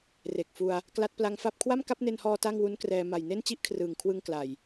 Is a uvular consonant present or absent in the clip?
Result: absent